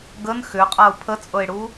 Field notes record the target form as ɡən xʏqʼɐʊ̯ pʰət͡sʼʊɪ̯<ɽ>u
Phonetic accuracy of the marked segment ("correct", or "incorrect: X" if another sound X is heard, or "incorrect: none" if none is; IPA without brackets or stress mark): correct